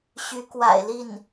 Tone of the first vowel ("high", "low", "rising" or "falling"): rising